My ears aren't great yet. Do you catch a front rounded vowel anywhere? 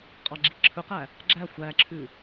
no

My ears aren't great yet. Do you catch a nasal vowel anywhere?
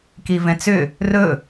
yes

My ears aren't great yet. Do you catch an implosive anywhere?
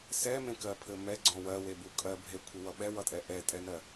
yes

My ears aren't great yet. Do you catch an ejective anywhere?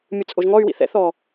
yes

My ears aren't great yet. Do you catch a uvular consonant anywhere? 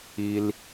no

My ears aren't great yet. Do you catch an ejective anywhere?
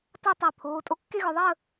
yes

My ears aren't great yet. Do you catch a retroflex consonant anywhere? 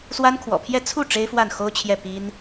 yes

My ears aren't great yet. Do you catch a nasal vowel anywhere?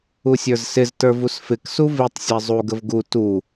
no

